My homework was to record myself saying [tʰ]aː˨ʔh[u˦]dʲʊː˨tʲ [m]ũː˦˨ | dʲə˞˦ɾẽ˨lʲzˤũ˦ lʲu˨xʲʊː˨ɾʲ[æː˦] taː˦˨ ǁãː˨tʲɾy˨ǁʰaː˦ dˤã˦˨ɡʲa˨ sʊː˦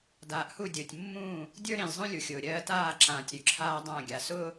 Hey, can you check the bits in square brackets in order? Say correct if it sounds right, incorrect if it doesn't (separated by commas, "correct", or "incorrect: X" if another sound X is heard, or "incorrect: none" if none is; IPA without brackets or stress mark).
incorrect: d, incorrect: u˦˨, incorrect: mː, incorrect: ɜː˦